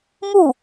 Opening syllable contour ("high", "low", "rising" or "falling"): falling